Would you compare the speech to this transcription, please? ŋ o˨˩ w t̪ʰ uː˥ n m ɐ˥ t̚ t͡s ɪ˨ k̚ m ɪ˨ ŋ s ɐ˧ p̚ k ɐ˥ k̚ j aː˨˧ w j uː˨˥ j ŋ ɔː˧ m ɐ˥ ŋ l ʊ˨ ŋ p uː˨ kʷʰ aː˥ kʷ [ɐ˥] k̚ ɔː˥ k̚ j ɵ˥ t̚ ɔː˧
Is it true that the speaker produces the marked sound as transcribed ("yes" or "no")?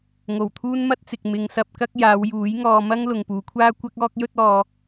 yes